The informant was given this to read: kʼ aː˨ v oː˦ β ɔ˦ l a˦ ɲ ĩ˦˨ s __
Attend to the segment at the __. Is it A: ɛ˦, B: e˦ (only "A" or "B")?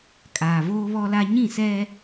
A